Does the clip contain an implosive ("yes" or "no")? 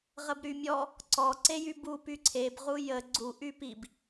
no